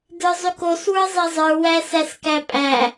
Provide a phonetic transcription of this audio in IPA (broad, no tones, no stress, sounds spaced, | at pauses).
d ə˞ zˤ y k o s w ə˞ zˤ e zˤ ə˞ w æ s æ s k æ pʼ æ